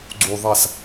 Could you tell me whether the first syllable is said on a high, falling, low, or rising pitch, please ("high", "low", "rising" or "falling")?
low